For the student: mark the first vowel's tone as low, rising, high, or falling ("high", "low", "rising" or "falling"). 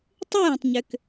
falling